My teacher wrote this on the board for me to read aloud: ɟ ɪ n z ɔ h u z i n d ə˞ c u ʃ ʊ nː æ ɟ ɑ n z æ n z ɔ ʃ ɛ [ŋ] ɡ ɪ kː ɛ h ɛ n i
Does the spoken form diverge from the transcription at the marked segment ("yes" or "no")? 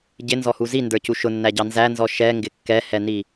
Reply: no